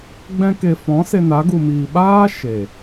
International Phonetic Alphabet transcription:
ɡ͡b ɛ̃˧ k e˨ f ɔ̃˨˦ s e˧ n a˨˦ ɡ u˨ m iː˨ ɓ aː˦ ʃ e˨

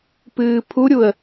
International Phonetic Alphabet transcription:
p ɨː pʰ u ɾʲ u ə̯

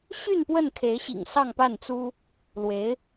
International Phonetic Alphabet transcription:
ɕ y˥˧ n p w ə˥˩ n kʰ e˧˥ ɪ̯ ɕ ḭ˨˩ ŋ s ɑ˥˧ ŋ p a˥˩ n t͡s u˥ | l w e˧˥ ɪ̯

